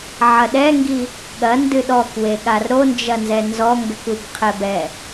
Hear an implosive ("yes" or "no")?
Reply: yes